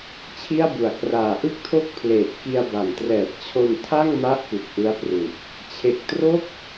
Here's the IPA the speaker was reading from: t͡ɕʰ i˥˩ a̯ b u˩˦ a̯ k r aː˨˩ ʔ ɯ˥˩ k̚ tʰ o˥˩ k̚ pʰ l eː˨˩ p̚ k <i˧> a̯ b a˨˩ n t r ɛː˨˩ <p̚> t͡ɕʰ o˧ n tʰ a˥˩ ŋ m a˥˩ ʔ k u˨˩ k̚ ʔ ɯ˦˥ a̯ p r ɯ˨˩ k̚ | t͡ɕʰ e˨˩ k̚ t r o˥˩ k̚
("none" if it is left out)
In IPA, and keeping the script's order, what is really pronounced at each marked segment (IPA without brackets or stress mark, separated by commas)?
i˧, t̚